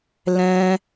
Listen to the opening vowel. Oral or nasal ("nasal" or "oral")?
nasal